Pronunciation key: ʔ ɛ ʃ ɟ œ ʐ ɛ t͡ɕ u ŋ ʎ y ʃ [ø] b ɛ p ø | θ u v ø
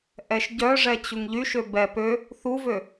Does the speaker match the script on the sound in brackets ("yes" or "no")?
yes